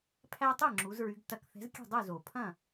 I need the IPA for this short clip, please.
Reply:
pʰ æ˦ tˤ e˥˨ ŋ͡ǁ u˨˦ z ɹ y˨˦ ɡ t ɐ˧˩˧ k θ ɛ̤˨˦ z kʲ ɛ̤˥˨ dˤ u˥˨ z o˩ pʰ ɐ̃˥˨

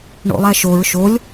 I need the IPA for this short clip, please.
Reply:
ɳ o̰ lˠ æ ʃ o ɹ ʃ o lʲ

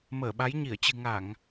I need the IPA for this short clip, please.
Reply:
m əː˧˩ ɓ a˨˦ j ɲ i˧˩ ə̯ t͡ɕ ɨ̤˨˩ ŋ a˧˩˨ ŋ

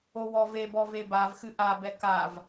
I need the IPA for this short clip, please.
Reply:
o w ɔ v e b ɔ v e b a v x ɨ ʔ a b ɛ k a v

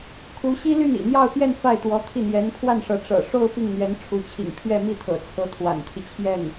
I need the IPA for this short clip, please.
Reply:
kʰ u˧˥ ɕ i˥ l y˥˩ n ḭ˨˩ n̪ j ɑ˥˧ ʊ̯ p j ɛ˥˧ n f a˥˩ ɪ̯ t̪ w ɔ˧˥ t̪ʰ i˥˩ n̪ j ɛ˧˥ n pʰ w a˥˩ n ʂ ɤ˧˥ ʈ͡ʂ ɤ̰˨˩ ʂ o˥˧ ʊ̯ p i˥˩ ŋ n̪ ɥ ɛ˧˥ n ʈ͡ʂʰ u˧˥ t͡ɕʰ ḭ˨˩ ŋ pʰ ɥ ɛ˥˧ m i˥˩ t̪ʰ ɤ̰˨˩ t͡sʰ ɤ˧˥ t̪ʰ w a̰˨˩ n t̪ʰ i˦ t͡ɕʰ j ɛ˥˩ n

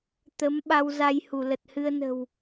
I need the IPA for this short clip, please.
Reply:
t̪ ə˨˦ m ɓ a˧ w z a˧ j h u˧˩ l ə˨˩ t̚ h ɨ˧ ə̯ n ə̤˨˩ w

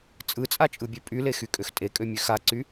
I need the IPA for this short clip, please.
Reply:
t͡sʼ ɯ t͡sʼ a t͡ʃʼ ɯ bʲ ø pʼ y l e x y kʼ ø x tʼ e kʼ ø mʲ ø x a ǀ y

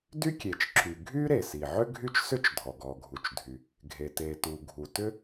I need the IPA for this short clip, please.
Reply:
d y˥ kʲ e˩ t͡ʃ ǁ y˩ ɡʱ y˥ ɾ e˩ s i˩ ʕ ʏ˥ ɡʱ y˥ t͡ʃ s ʏ˥ t͡ʃ dʱ ɔ˩ ɡ ɔ˩ ɡʱ u˩ t͡ʃ dʱ y˩ | ɡʱ e˩ t e˩ t u˩ ɡʱ u˩ t ʏ˥

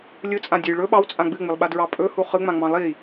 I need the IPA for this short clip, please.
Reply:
lʲ ɯ t͡sʼ ã dʲ ɵ j ɭ ɵ ɓ ɑ w t͡sʼ ã ɡ͡b ɨ ŋ͡m ɨ lˠ ɓ a d ɹ ɑ pʼ ɵ h u χ ɯ ŋ͡m ã ŋ͡m ɑ̃ lˠ i

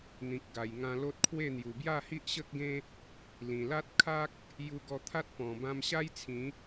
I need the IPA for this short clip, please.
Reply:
n̪ ĩ˨ k̚ ɡ a˨˩ j ŋ ã˧ l o˦ t̚ kʰ w e˥˧ n̪ j u˨˩ b j a˥˧ h i˦ ʔ ɕ ə˦ k̚ ɡ ẽ˦ | l ĩ˨˩ l a˦ t̚ kʰ a˦ k̚ | j u˧ ɡ ɔ˧ t̪ʰ a˦ t̚ p ɔ̃˨˩ b ã˧ m ɕ a˦ j t͡sʰ ĩ˨˦

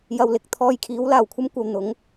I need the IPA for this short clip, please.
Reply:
j ɐ˧ w l ɪ˨ k̚ t̪ʰ ɔː˧ j kʰ iː˨˥ w l aː˨˩ w kʷʰ ɐ˥ m kʷ ɐ˨ w n̪ ʊ˨˥ ŋ

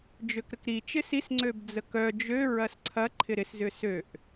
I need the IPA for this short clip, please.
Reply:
d͡ʒ ø k ɾ ə k ɾ i t͡ʃ ɪ s i s ŋ͡ǀ ø b d͡z ə k œ d͡ʒ ø ɹ ɐ s ǀʰ ɐ ǃʰ ɪ ɾ ɪ s z ʏ s ø ʔ

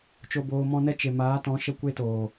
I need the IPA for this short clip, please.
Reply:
t͡ʃ o˨ b oː˨ m ɔ̃˧ n ɛ˦ t͡ʃ e˨ m aː˨˦ t ɔ̃˨˦ ʃ ə˦ kʷ e˦ t oː˨

